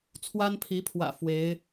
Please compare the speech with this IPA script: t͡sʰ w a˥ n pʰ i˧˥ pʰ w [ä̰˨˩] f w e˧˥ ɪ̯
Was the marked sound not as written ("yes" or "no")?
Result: no